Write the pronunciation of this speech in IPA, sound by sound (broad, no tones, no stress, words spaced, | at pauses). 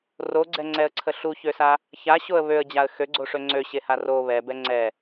roɡ͡ǀɛŋ͡ǀɛə̯ǀʰə ɬuçøsa | çaɕoə̯ βøə̯d͡ʑaə̯ xøɡ͡ǀoʂø ŋ͡ǀøɕeha ro βɛbɛ ŋ͡ǀɛ